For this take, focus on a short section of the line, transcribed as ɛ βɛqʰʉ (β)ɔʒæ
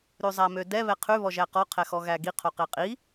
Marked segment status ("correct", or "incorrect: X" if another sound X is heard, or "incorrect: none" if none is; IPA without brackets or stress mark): correct